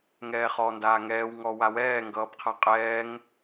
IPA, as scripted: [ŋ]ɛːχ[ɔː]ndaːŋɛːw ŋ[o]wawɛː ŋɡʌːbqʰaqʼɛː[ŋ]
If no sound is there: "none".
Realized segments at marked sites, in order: ŋ, ɔː, ɔ, ŋ

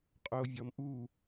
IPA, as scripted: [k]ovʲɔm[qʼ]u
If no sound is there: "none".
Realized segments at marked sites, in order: qʼ, ʔ

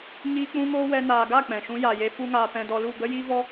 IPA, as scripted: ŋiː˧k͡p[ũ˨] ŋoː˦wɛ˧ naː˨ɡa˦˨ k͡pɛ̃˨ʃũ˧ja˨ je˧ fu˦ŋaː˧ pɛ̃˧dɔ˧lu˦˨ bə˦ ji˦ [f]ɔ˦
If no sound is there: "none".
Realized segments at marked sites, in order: ũ˧, v

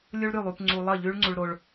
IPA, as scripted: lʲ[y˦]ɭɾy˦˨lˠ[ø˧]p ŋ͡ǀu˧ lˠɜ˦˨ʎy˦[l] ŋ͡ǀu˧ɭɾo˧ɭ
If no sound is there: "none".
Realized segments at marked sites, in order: u˦, u˧, ɭ

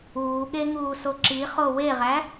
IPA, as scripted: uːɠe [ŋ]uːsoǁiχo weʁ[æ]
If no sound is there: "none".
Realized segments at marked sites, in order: ŋ, æ

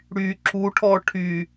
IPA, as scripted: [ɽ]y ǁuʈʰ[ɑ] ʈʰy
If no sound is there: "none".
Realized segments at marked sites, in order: ɽ, ɔ

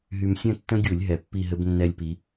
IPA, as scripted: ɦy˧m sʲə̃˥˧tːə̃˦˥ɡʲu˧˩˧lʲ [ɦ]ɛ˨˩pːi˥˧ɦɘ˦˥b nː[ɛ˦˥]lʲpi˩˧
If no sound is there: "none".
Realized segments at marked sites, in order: ɦ, ɛ˦˥

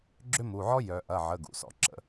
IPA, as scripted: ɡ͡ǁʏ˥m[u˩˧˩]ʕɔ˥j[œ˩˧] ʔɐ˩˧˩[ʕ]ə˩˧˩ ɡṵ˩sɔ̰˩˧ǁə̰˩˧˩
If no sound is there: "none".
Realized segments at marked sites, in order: u˩˧˩, œ˩˧, ʕ

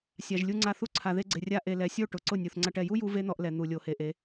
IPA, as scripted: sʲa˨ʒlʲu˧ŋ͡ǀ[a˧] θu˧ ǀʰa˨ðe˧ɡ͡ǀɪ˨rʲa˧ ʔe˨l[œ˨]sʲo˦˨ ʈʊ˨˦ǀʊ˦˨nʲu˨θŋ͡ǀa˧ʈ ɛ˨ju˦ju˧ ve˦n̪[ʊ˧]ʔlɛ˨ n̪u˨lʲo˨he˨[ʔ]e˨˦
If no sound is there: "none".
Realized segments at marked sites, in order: a˧, ɛ˨, ɔ˧, ʔ

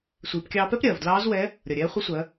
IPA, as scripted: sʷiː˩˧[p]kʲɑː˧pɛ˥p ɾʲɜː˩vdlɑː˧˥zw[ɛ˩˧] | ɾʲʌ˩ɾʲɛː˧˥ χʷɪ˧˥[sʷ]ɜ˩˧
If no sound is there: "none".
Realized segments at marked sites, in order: p, ɛ˧˥, sʷ

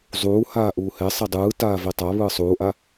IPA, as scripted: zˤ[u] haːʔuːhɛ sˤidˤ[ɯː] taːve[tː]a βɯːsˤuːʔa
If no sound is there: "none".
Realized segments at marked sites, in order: uː, ɯː, tˤ

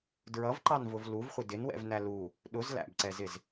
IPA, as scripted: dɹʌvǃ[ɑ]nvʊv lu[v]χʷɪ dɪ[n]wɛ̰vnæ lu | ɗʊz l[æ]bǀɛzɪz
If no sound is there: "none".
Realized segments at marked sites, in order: ɑ, v, n, æ̰

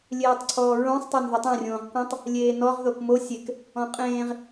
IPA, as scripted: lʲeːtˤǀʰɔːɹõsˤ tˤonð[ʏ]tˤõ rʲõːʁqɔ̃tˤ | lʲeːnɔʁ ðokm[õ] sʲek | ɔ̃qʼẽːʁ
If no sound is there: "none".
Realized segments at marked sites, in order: ʏ, o

